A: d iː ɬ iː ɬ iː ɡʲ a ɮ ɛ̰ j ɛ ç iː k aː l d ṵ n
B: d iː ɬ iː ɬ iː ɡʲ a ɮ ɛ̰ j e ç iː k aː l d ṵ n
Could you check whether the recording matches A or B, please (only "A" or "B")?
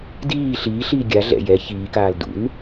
A